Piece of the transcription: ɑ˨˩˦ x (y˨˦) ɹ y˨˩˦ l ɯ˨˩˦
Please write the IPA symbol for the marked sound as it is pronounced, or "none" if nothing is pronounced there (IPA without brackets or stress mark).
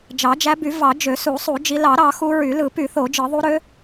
u˨˦